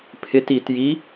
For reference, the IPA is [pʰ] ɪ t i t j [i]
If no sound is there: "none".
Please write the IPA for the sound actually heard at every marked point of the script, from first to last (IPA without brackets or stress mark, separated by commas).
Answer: pʰ, i